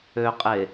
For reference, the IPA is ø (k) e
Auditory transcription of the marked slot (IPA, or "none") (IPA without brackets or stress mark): qʼ